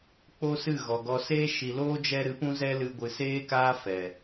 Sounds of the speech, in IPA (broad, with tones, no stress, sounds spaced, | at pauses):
k͡p o˦ s ɨ˦˨ ɣ ɔ˨ ɡ ɔ˧ s eː˧ ʃ i˨ l oː˦ d͡ʒ ɛ˧ ɾ ɨ˨˦ p ũ˦ z ɛ˦ l ɨ˧ ɡʷ ɨ˨ s eː˦ k aː˦ f ɛ˨